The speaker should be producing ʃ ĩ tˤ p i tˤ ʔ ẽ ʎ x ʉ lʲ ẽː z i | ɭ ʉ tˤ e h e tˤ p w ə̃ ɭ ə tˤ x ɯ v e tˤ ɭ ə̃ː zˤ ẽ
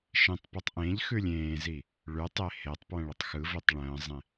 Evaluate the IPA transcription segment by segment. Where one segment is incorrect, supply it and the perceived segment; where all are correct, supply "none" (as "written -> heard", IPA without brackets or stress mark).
none